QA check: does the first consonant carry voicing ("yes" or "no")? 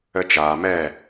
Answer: no